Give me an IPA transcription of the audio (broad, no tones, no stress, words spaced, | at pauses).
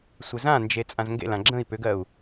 sʷɪzãnd͡ʒe t͡sʼãzŋɡḛlã ɡ͡ǁə̃i̯ pʏɡɜu̯